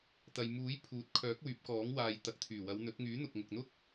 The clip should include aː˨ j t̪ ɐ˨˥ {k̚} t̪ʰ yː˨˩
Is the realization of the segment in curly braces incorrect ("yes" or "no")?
no